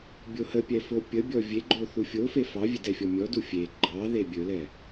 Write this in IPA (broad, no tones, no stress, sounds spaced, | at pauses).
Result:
bʲ o h ə pʲ ɛ f o pʲ ə bʲ ɔ vʲ e ɡ͡ǃ o θ u fʲ o f e f ɑ vʲ e d ɛ fʲ ɔ mʲ ɔ d u fʲ e ɡ͡ǃ ɑ ð e bʲ ɵ l ɛ